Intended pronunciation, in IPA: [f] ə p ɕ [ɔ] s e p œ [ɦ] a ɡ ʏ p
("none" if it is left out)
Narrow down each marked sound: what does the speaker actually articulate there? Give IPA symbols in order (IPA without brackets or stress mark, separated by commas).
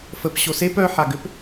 f, o, ħ